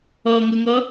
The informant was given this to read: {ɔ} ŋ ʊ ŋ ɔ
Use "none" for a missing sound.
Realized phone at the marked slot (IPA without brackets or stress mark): ɔ